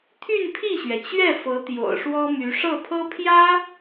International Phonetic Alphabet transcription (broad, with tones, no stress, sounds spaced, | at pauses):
t̪ʰ y˥˧ n pʰ i˥˩ ɕ ɥ ɛ˩ t͡ɕ ɥ ɛ˥˩ f ɤ˧˥ t̪ j o̰˨˩ ʊ̯ ʂ w ɔ˥ m y˧˥ ʂ ɤ˥˩ pʰ ɤ˥ pʰ j ä˥